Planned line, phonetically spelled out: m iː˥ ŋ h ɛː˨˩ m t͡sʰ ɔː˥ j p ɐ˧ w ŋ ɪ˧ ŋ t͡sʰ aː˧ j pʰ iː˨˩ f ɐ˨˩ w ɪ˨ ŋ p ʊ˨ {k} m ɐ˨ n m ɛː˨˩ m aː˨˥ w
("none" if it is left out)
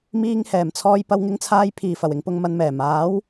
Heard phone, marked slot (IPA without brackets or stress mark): ŋ